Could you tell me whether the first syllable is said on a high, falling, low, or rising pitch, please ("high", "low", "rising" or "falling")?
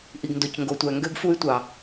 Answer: low